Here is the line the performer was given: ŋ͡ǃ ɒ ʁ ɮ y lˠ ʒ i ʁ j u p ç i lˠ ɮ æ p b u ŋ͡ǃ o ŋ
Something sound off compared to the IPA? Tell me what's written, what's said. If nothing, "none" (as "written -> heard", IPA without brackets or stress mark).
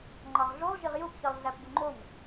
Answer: y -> u